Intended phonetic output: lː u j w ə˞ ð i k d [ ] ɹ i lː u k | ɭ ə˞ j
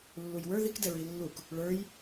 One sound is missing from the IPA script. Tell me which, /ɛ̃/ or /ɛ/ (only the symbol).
ɛ